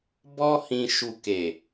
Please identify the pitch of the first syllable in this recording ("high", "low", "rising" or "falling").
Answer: high